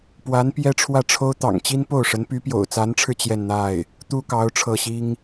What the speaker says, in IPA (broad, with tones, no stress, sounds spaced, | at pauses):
p w a˧˥ n p j ɛ˥ ʈ͡ʂʰ w ä˥˩ ʈ͡ʂʰ o˥ ʊ̯ t̪ ɑ̰˨˩ ŋ t͡ɕ i˥ n p o˥˩ ʊ̯ ʂ ə˧˥ n p y˧˥ p j o̰˨˩ ʊ̯ t͡s a˧˥ n ʈ͡ʂʰ ɻ̩˧ t͡ɕ j ɛ˥˧ n n̪ a˥˩ ɪ̯ | t̪ u˥ k ɑ˧˥ ʊ̯ ʈ͡ʂʰ ɤ˥˩ ɕ i˥ ŋ